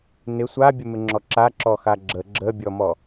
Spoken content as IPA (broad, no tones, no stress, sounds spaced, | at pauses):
n ɪ sʷ a bʲ ə m ɪ ŋ͡ǁ ɔ ǁ a ǁ ɔ x a ɡ͡ǁ ə ɡ͡ǁ ə bʲ ɔ m ɔ